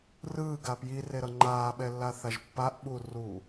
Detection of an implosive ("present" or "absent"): present